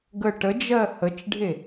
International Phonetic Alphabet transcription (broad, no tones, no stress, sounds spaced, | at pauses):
ɡ ə ʈ ə d͡ʒ ɜ h ə t͡ʃ ɖʱ e